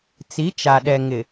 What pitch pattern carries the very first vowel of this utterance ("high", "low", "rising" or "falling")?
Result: rising